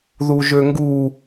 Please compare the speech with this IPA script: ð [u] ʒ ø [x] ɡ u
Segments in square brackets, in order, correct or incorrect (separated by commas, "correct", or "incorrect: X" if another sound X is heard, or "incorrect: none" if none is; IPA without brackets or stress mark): correct, incorrect: ŋ